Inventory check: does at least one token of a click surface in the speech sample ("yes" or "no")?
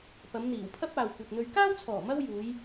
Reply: no